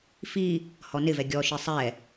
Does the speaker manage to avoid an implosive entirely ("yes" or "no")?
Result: yes